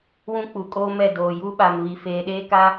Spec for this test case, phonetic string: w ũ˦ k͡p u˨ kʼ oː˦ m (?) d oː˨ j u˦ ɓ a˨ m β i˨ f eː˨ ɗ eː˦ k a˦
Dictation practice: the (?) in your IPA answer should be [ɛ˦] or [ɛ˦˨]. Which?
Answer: ɛ˦˨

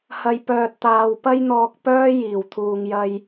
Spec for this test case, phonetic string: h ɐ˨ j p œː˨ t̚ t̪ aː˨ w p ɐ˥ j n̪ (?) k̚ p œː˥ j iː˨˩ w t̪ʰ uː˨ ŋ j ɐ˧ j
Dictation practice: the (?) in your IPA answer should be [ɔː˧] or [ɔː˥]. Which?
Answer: ɔː˧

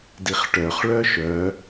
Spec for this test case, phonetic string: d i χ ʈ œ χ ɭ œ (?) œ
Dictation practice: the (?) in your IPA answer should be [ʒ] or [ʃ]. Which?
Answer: ʃ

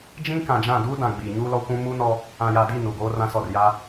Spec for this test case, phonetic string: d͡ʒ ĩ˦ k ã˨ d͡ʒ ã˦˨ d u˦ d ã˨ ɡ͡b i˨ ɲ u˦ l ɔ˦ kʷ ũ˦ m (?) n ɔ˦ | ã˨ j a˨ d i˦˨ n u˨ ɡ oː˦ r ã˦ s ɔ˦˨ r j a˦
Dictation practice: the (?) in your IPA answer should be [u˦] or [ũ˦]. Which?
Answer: u˦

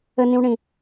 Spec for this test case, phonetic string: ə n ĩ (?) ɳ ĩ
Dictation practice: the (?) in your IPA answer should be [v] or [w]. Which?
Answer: w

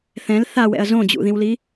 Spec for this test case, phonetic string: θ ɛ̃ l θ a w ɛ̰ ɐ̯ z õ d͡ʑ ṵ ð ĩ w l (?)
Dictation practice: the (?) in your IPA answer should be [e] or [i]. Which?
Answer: i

